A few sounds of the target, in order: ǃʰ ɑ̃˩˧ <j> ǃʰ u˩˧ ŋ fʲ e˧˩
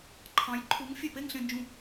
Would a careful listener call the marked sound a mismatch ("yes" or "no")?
no